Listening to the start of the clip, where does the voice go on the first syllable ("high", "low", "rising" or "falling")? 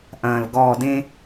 low